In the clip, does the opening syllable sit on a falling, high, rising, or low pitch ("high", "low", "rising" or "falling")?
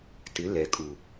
rising